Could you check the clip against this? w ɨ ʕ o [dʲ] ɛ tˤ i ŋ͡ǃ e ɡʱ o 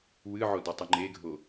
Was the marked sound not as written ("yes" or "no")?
yes